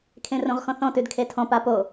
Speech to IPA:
kʰ ẽ r õ ʁ x ɔ̃ θ ɔ̃ t ʉ d kʰ e tʰ ɔ̃ p a p o

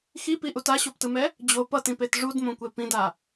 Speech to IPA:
x i p i ʔ u t a ɕ o p t ɯ m ɛ | d͡ʑ o p ʌ t ĩ p e t ʐ u d m õ kʷ e p ĩ d a

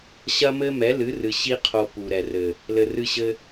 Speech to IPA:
ɕ ɐ˦ m ɘ˦ m ɛ˨˦ l ɨ˨˦ r ɨ˨ ɕ i˦ qʰ o˧ p u˨ ɾ ɛ˨ r ɘ˨ | l ɘ˨ r ɨ˧ ɕ ɘ˧

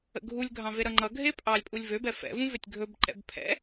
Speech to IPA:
ə̰ ɡʱ u lʲ ɡʱ ɑ̃ v e ɾ ʌ ŋ͡ǃ ʌ ɡʱ e pʼ ɑ lʲ pʼ u lʲ v ø b ɛ f ɛ̰ v ũ v ø tʲ ɡʱ ɵ b ǃ ɛ̰ b pʰ ɛ̰

